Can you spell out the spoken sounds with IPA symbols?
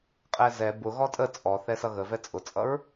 qʼ ɛ z ɛ b ʊ ɣ ɔ tʼ ə t͡sʼ ɔ θ ɛ s ʌ ɣ ə v ɛ t͡sʼ ʊ t͡sʼ ʌ ɹ

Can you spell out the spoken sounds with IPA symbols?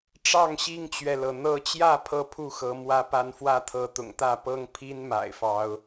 ʈ͡ʂ ɑ˥˨ ŋ ɕ i˦ ŋ t͡ɕ ɥ ɛ˨ l ɤ˩ n̪ ɤ˨˦ t͡ɕ j ä˥˨ pʰ ɤ˥˨ pʰ u˥˨ x ɤ˨˦ m w ä˦ p a˦ n f w ä˦ t̪ʰ ɤ˨˦ t̪ ʊ̰˨˩ ŋ t̪ ä˥˨ p ɤ˦ ŋ pʰ i˦ n m a̰˨˩ ɪ̯ f ɑ˨˦ ʊ̯

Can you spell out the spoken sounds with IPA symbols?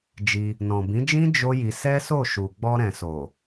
d͡ʒ i˧ | n ɔ̃˨ b ĩ˨˦ d͡ʒ ĩ˦ d͡ʒ o˦ j i˧ s ɛ˦ s o˦˨ ʃ u˨ ɡ͡b ɔ˧ ɾ ɛ̃˨ s o˨

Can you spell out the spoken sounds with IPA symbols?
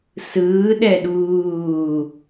s ɯː ɗ ɛ ɗ uː

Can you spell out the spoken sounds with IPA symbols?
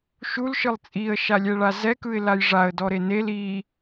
ʃ u l ʃ ɯ lˠ t͡sʼ i ə̯ ʃ a lʲ ɛ ɭ a z ɛ k ɯ ɪ̯ l a j ʐ a ə̯ d ɔ ɾ e n e l i

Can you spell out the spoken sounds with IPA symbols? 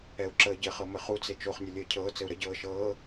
ɛ u̯ ǁ əː ɟ ɘ χ ɤ m ɘ χ u t͡s e t͡ʃ o χ nʲ ɘ lʲ ɘː cʰ ɤː t͡s ɘ u̯ ɾ ə ɟ ɤː ʃ ɤː

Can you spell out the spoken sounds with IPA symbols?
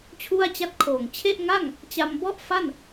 t͡ɕʰ u˥˩ a̯ t͡ɕ a˥˩ t̚ kʰ oː˨˩ ŋ t͡ɕʰ e˥˩ ʔ ŋ a˥˩ ŋ | t͡ɕ a˧ m b ɔ˥˩ ʔ f a˥˩ n

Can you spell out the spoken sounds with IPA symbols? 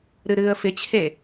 ɾ ɨ ɾ ɨː ə̯ f ɪ t͡ɕʰ e

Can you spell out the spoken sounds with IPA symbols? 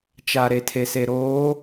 t͡ʃ a˨ ɾ e˨ tʰ e˨ s e˨ ɾ oː˨˦

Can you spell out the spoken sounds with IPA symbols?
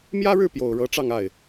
m j ä˥ ɻ ɻ̩˥˩ p j o˨˩ ʊ̯ ɻ ɤ˧˥ ʈ͡ʂ ɑ˥˧ ŋ a˥˩ ɪ̯

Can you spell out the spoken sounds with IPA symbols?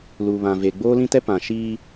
l uː˨ β ã˨ v e˨ ɡ͡b oː˦ l ĩ˦ t ɛ˦ p ã˨ ʃ iː˦

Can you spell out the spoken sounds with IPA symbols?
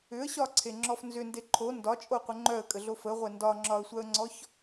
ʏ ə̯ ɕ ɒ ǀʰ e ŋ͡ǁ ɔ f n z ʏ n d e ǃʰ o n d ɒ t͡ʃʼ o qʷ ə ŋ͡ǃ œ ə̯ kʼ ə ɮ o f ə ʁʷ ɛ n d ɒ ŋ͡ǁ ɒ ə̯ sʷ œ ə̯ ŋ͡ǀ ɔ ç

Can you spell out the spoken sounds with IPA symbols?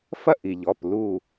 f ɐ˦ ʔ i˩ ʎ ɔ˩˧˩ p l u˧˩

